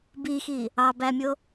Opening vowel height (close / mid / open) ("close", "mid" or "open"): close